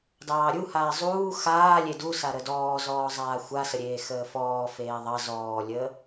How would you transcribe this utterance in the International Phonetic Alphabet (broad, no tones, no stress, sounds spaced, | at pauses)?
d ɑː ɾʲ u h aː zˤ uː x aː lʲ e d u s a ɾ ə d ɔː z ɔː zˤ aː xʷ a s ə ɾʲ eː x əː f ɔː f eː ðˤ ɑ z ɔː lʲ əː